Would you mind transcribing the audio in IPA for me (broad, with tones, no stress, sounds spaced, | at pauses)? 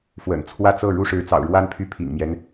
f w ə̰˨˩ n t͡sʰ w ä˥˧ t͡s ɤ˥˩ ɻ u˥ ʂ ɻ̩˧˥ t͡s ɑ̰˨˩ ʊ̯ ɻ w a˥ n pʰ y˥˩ pʰ ḭ˨˩ ŋ m j ɛ˦ n